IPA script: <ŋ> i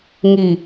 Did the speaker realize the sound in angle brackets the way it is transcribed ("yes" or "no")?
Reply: yes